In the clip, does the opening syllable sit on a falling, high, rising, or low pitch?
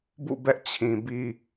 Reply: falling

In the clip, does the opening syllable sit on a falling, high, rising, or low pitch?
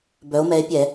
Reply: rising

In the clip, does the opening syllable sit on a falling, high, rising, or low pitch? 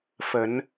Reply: low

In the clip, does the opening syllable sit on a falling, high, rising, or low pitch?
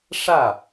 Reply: falling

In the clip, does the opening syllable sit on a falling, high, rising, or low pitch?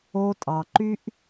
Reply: high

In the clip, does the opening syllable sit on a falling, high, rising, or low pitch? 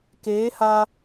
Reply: rising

